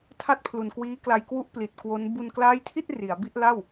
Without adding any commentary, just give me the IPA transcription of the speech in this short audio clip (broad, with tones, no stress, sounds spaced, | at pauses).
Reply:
tʰ a˥˩ t̚ pʰ l u˨˩ n k w iː˦˥ k l a˧ j k w u˦˥ ʔ p l i˨˩ t̚ k w o˦˥ n b u˧ n k l aː˦˥ j tʰ i˥˩ t̚ r i˩˦ a̯ b i˥˩ ʔ l a˥˩ w